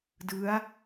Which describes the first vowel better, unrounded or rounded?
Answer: unrounded